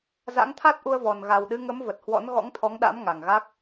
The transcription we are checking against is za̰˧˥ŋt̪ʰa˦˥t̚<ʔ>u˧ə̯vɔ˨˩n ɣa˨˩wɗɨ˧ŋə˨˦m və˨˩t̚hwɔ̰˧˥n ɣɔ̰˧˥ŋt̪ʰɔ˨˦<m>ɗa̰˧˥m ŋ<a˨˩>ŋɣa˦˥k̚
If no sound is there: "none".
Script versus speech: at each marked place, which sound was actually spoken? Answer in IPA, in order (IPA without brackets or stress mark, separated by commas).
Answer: ʔ, ŋ, a˨˩